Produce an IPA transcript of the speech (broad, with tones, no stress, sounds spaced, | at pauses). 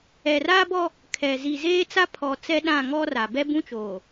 ɛ˨ r a˦ b ɔ˦ | kʰ ɛ˨ z i˨ z eː˦ t͡s a˦ pʰ ɔ˨ t͡s ɛ˦ ɗ ã˦˨ ŋ ɔ˦ r a˨ b ɛ˦ b ũ˦ t͡ʃ oː˨